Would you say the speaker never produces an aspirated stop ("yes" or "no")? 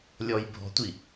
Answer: yes